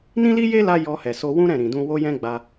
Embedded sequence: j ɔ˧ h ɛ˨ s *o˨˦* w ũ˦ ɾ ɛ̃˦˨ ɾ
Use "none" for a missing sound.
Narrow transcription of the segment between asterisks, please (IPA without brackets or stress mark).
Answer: o˧